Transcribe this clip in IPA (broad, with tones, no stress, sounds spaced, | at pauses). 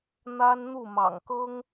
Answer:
n̪ a˥ n n̪ u˥˩ m ɑ̰˨˩ ŋ k ɤ˥ ŋ